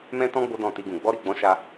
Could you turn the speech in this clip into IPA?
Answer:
m ɛ̃˦ t ɔ̃˦ ɡ͡b o˦ d ɔ̃˦˨ t i˧ ɡ ũ˨ ɡ͡b ɔ˧ ɾ i˨ ɡ͡b ɔ̃˨˦ ʃ a˧

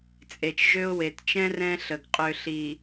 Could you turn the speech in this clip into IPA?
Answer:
t͡sʼ e˨ t͡ʃ ʒ ø˦ ʊ̯ w e˨ t t͡ʃ ɛ̃˦ r ɛ̃˦ ɬ ə˨ ɡ qʼ ø˨ ɬ i˨

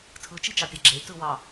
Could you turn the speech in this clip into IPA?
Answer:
tʰ ɯ t͡ʃ i t͡ʃ ɑ pʲ æ ɡ͡ǁ e y̯ t ɯ w ɑ

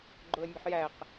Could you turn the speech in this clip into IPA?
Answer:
ɡ͡ǃ ʊ ə̯ nʲ ə̤ ħ j æ q

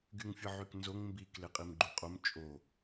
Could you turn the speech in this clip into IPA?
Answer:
ɡ y ŋ fʲ ɯ ʕ y k n z o ŋ m b i k l e qʼ i m ɡ͡ǃ u qʼ o m t͡ʃʼ o

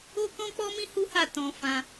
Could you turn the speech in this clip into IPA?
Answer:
o˦ k ɔ̃˦ k͡p ɔ˦ m ĩ˦ h u˦ h a˦˨ t ɔ̃˧ f ã˧

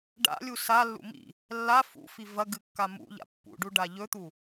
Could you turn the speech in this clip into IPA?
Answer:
ɖ a̰ lʲ u s a lː ṵ m ḭ | lː a f ṵ f i v ɐ ɡ ɨ kː a m ṵ ʎ a̰ pː ṵ ɖ u ɖ a ʎ ɵ t̪ u

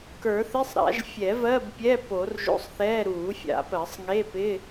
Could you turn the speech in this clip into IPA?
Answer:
k ə˞˨˩˦ θ ɪ˧˥˧ sˤ ɾ a̰˨˩˦ ʒ fʲ ɛ˨˩˦ v ɜ˧˥˧ b pʲ ɛ˧˥˧ p o˨˩˦ r ʒ o̰˧˥˧ sˤ θ ɛː˧˥˧ ɾ uː˨˩˦ fʲ a̰˨˩˦ p ɜ˨˩˦ sˤ ŋ e˧˥˧ p ɪ˧˥˧

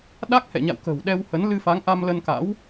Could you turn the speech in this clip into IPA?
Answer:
ɗ a˦˥ k̚ h ɛ̰˧˨ ɲ a̰˧˨ w k ə̤˨˩ w ɗ ɛ˧ w h ə˨˦ n l ɨ˧ f a˨˦ ŋ ʔ a˧ m l ə˧ n k a̰˧˥ w

